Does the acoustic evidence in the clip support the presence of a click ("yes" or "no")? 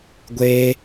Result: no